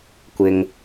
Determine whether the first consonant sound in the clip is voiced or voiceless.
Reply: voiceless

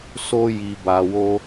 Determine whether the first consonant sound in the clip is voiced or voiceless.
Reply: voiceless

